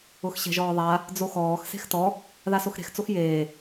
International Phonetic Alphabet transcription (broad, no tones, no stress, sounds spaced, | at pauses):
ʊ x ɕ ɛ̤ ʒ ɔː ðˤ a | d͡z o x ɔː x s e̤ x t ɔ | ð a s o x ɾ e̤ x t͡s o x j eː